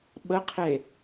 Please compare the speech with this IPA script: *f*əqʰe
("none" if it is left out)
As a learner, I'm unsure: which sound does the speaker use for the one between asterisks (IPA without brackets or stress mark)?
ɓ